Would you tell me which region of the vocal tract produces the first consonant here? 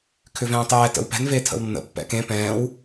velum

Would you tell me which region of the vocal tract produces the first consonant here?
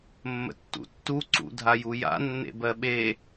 lips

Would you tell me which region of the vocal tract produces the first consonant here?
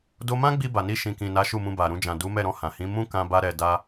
tongue tip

